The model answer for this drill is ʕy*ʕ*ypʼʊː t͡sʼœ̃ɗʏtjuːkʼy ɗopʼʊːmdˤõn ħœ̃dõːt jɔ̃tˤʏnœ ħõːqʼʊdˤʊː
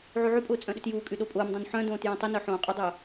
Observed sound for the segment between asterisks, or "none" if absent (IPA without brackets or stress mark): ʕ